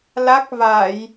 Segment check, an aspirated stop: absent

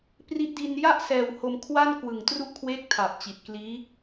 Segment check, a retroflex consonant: absent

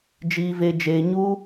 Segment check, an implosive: absent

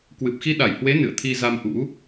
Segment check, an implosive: present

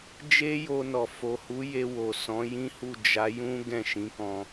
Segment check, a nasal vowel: present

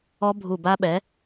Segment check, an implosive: present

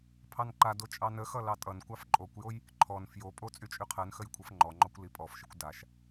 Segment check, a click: present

